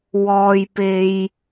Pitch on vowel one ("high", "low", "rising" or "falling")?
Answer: low